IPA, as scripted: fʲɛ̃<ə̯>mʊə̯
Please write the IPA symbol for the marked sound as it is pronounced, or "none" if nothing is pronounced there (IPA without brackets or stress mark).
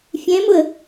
none